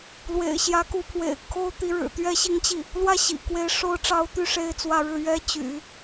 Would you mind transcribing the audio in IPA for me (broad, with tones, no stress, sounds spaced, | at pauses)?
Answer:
l w ḛ˨˩ ɪ̯ ɕ j ä˧˥ k u˧˥ pʰ w ḛ˨˩ ɪ̯ kʰ o˥ ʊ̯ t̪ i˧˥ ɻ ɻ̩˨˩ t̪ ɥ ɛ˥˧ ɕ i˥˧ ŋ t͡ɕ i˥˩ | l w ä˥˩ ɕ ḭ˨˩ k w e˧˥ ɪ̯ ʂ o˧˥ ʊ̯ ʈ͡ʂ ɑ˧˥ ʊ̯ t̪ y˥˩ ʂ e˥ ɪ̯ t͡s w ä˥˧ ɻ ɻ̩˥˩ ɥ ɛ˥ t͡ɕ y̰˨˩˦